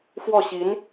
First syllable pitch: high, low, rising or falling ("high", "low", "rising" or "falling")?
falling